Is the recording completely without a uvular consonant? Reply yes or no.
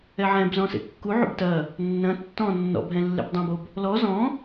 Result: yes